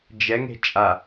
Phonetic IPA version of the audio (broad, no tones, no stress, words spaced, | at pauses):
d͡ʒɛŋe̤ t͡ʃʼa